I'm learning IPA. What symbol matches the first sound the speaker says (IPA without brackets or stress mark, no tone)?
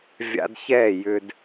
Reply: vʲ